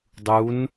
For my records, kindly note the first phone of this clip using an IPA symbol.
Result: dˤ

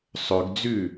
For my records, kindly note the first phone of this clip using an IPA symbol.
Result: sˤ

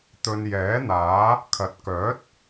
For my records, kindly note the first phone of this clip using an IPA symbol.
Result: t̪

